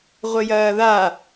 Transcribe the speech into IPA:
ʁʷ ɘ j ɐː ð a

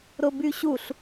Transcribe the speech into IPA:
ɾ ʊ b y ɕ u ɬ

